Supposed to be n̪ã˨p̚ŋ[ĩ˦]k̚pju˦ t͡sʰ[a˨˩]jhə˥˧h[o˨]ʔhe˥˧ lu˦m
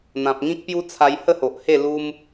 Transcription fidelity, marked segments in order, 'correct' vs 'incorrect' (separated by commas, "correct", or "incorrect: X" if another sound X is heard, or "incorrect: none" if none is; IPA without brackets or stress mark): correct, incorrect: a˧, correct